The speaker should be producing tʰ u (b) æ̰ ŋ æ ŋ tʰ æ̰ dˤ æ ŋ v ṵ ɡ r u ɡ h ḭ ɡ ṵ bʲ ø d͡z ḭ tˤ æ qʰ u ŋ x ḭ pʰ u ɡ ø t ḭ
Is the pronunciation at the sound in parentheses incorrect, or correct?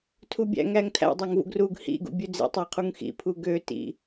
incorrect